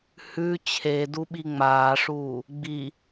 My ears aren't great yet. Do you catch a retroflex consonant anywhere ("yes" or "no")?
yes